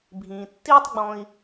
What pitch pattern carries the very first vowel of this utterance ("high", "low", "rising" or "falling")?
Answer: low